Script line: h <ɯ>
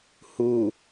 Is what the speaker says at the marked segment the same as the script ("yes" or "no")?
no